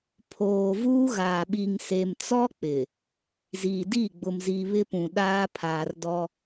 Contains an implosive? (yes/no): yes